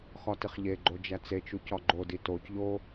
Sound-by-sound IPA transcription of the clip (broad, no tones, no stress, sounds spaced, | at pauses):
x ɒ t i χ ʎ e ɡ͡ǃ o d͡ʒ æ t͡s e t͡ʃ u c ɒ ɡ͡ǃ o d i t o c ʎ o